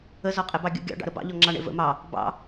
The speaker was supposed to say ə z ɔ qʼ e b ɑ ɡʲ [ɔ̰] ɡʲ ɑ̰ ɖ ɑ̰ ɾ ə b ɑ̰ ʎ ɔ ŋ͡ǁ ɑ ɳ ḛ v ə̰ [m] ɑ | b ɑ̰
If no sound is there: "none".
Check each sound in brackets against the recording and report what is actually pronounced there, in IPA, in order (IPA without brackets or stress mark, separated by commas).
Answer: ə̰, m